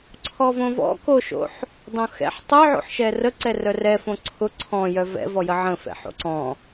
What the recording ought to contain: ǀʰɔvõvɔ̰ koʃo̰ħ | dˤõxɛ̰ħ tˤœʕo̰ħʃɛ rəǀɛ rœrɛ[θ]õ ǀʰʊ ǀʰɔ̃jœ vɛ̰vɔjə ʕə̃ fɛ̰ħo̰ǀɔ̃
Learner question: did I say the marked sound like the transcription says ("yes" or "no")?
no